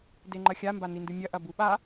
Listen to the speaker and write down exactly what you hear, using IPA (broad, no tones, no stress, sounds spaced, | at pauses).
d e ŋ͡ǃ ɐ xʲ a m b a n i n d ɨ mʲ ɐ ʔ ɐ b u ɓ a